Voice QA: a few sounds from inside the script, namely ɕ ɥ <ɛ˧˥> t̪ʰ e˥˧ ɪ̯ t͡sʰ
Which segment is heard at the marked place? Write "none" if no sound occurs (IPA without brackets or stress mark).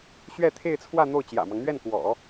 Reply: ɛ˥˧